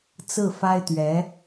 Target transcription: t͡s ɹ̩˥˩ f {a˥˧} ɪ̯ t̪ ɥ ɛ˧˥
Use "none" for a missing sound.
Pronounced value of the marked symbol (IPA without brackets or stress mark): a˥